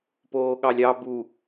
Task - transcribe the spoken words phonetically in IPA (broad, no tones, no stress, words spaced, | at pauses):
poːɠɑlʲɑ bu